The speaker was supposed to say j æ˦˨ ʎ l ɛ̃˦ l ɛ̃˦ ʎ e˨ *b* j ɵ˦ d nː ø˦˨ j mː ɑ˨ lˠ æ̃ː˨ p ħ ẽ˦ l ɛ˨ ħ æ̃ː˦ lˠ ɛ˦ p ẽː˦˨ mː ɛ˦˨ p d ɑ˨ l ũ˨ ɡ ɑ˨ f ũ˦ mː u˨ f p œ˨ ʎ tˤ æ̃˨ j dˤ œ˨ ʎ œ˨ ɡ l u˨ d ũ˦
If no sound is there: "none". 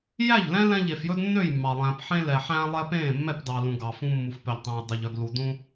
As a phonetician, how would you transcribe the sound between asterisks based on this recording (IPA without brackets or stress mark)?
f